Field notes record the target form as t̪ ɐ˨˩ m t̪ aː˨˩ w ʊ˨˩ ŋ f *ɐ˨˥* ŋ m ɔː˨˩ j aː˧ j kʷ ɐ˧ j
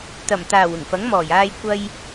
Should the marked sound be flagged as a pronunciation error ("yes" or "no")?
no